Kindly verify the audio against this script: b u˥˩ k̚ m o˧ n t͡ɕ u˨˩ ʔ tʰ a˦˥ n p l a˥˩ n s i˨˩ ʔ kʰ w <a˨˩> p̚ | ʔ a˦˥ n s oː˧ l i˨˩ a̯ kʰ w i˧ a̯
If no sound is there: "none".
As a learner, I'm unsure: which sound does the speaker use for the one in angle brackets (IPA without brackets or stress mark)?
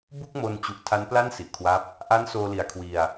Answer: a˦˥